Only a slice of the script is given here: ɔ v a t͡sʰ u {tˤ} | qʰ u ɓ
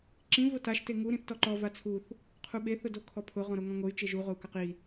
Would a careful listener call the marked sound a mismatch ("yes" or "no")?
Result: yes